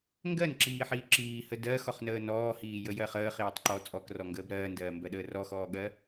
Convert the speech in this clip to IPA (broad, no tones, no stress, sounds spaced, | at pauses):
ŋ ɡ ɜ n ǁ iː ħ iː ǁ iː h ə d ɜː x ɔ χ n əː n ɔː h iː j ə j ɜ χ əː χ iː tˤ ǃ ɔ t͡sʼ ɔ k r ɔ ŋ ɡ əː b ɾ ɜː n d ɜː m b ɜ ɗ əː r ɔ x ɔː ɠ ɜ